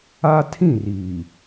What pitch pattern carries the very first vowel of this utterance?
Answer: high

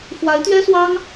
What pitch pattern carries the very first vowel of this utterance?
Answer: rising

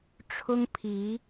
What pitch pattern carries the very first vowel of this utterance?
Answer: high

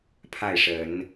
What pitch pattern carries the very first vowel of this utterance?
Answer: falling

